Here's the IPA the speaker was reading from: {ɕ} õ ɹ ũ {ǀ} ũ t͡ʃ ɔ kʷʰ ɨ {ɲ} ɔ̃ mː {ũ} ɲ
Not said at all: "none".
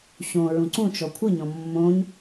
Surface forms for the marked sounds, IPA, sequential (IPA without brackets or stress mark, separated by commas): ɕ, ǀ, ɲ, õ